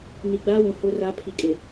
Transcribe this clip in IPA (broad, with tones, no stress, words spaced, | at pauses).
ni˨ɡ͡baː˦wũ˨ hʊ˦ra˦ pʰi˨kʼɪ˨